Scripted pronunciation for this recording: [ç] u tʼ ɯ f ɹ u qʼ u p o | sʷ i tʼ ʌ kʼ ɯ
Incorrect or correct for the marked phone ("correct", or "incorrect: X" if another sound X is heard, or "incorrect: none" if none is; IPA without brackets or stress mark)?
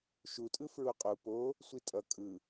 incorrect: ʃ